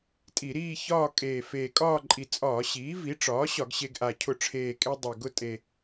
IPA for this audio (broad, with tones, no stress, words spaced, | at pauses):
tʼi˧˩˧ɾiː˥˧ çɒː˥˧ kʼeː˨˩ feː˨˩kʼɒː˥˧ǃʼi˨˩ t͡sʼɒː˧˩˧ɕiː˩˥ vi˩˥ʈ͡ʂɒː˩˥ ɕɒ˧˩˧ɡɕe˧ɡʔa˨˩ cʰʊ˧˩˧ʈ͡ʂʰeː˨˩kʼe˧ dˤe˨˩ɡʊ˥˧ tʼe˨˩